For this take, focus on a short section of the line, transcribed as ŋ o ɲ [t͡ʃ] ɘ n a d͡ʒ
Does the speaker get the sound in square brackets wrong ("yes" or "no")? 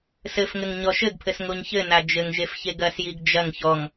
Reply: yes